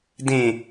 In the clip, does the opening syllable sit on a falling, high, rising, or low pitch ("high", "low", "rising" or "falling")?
low